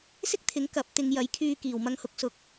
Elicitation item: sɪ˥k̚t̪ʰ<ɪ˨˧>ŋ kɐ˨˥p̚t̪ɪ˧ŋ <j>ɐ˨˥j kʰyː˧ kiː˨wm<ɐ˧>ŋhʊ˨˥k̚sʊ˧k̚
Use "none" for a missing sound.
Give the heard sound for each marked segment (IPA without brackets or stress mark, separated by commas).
ɪ˨˥, j, ɐ˧